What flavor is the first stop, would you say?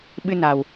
implosive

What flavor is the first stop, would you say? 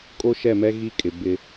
ejective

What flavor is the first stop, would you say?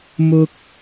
plain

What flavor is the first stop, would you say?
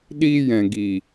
implosive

